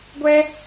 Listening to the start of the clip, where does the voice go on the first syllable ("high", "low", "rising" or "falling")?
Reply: high